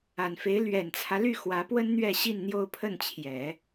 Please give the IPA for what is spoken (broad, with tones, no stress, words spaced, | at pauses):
a˨˩nfe˧˥ɪ̯ lɥɛ˨˩nt͡sʰä˦ ly˥˩ xwä˧˥pwə˥n n̪ɥɛ˥˧ɕi˥˧nn̪jo˥˧ʊ̯ pʰə˥˩nt͡ɕʰjɛ˨˩˦